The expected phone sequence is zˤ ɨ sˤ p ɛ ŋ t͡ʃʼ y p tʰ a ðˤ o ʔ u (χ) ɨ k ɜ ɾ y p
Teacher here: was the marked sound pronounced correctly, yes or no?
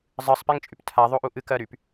no